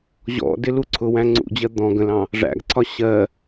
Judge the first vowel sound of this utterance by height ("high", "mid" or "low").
mid